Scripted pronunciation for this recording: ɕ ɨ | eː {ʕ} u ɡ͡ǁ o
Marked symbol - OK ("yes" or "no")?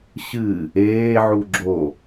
yes